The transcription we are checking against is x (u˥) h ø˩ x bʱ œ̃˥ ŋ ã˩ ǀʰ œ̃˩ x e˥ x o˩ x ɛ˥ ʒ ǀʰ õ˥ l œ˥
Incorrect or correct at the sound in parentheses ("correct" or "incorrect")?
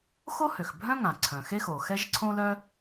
incorrect